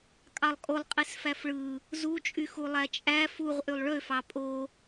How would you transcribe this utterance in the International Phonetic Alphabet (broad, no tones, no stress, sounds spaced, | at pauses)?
kʼ ɑ lˠ kʼ o lˠ qʼ i s f æ f ɭ ɯ | z u t͡ʃʼ y x u lˠ æ t͡ʃʼ æ f u ʁ ʔ y lˠ ɭ ø f ɑ pʼ o